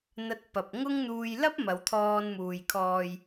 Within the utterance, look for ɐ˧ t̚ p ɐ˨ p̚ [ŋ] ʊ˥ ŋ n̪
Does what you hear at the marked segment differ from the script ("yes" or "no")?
no